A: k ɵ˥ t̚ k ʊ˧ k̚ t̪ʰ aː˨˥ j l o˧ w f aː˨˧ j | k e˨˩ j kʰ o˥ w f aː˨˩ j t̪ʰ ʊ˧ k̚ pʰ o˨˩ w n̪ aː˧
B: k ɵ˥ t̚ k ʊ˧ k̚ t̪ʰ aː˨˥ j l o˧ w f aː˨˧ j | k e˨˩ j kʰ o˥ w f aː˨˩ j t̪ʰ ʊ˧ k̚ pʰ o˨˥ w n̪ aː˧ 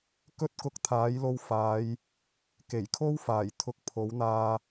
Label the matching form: B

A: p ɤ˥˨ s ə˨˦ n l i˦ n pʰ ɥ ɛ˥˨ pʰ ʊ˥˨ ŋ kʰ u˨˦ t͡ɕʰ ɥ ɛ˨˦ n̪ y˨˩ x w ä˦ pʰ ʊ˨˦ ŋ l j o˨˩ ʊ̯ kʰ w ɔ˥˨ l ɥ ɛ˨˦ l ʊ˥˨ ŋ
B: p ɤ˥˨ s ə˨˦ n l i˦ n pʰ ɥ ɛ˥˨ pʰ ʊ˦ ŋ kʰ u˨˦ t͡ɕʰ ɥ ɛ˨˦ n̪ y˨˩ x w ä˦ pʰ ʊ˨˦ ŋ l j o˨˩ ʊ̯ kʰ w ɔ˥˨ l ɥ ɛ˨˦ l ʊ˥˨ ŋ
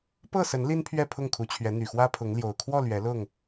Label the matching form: A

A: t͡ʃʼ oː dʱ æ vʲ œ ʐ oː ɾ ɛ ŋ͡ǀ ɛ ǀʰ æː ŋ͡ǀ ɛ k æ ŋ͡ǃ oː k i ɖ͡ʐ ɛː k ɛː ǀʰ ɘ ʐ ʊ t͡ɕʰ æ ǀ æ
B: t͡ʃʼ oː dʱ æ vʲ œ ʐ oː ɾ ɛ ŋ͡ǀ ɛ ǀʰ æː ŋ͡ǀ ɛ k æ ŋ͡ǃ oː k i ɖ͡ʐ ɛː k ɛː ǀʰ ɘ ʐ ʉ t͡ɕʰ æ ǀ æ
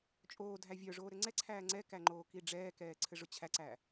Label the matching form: A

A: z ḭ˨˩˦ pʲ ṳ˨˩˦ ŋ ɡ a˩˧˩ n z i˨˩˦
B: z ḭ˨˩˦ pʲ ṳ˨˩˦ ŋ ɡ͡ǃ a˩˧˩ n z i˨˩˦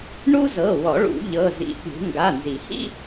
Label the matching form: A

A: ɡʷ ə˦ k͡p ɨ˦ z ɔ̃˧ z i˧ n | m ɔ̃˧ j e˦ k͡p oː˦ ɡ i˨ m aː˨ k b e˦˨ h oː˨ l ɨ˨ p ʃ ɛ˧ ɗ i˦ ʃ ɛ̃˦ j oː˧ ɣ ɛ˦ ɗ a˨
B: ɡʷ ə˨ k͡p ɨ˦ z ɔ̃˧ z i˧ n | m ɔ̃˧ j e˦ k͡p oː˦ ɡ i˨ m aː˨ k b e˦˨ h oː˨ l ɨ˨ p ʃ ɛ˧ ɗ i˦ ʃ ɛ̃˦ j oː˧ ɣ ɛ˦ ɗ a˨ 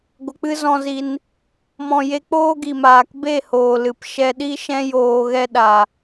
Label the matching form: B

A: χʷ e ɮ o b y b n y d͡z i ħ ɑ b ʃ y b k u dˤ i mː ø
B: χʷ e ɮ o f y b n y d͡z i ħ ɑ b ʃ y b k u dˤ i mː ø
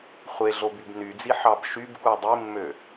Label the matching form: A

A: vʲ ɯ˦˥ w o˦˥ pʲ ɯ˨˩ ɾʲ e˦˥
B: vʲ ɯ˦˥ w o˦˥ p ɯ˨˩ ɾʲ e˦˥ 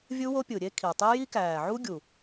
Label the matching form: A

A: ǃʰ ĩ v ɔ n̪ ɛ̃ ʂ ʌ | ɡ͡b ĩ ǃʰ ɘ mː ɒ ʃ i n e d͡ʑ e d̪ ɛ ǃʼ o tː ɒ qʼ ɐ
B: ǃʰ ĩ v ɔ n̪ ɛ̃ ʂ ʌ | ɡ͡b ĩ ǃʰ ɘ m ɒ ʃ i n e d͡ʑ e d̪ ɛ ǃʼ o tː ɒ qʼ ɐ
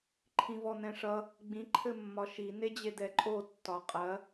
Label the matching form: A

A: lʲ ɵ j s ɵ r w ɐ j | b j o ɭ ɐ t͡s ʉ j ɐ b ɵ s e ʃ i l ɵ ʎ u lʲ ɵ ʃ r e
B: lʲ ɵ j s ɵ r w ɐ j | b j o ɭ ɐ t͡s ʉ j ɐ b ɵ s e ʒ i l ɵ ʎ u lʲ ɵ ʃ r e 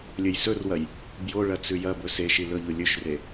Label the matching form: A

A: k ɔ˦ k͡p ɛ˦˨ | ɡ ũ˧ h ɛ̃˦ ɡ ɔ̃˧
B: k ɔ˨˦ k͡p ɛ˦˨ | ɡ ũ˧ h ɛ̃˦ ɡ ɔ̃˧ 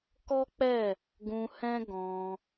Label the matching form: A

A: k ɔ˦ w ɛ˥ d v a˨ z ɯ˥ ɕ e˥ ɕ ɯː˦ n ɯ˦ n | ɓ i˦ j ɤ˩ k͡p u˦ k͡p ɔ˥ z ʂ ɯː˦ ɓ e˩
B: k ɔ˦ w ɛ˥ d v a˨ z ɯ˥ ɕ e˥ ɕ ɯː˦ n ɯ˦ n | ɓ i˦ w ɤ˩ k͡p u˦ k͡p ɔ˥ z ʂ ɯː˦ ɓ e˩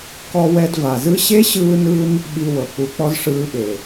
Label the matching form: B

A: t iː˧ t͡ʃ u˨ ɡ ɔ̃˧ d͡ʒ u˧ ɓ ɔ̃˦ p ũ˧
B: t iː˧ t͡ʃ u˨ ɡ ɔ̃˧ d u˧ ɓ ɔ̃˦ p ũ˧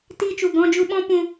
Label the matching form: A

